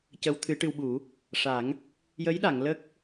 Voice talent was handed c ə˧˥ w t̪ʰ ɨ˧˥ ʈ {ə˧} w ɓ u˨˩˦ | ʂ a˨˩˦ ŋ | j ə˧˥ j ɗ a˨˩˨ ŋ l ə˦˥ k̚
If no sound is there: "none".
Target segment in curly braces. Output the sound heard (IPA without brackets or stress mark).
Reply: ɨ˧